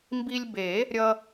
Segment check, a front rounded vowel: absent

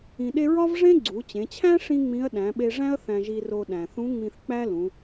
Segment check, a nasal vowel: present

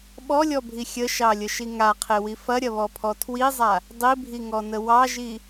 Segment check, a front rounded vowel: absent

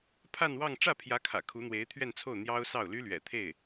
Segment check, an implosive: absent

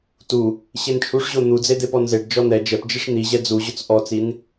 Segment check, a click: absent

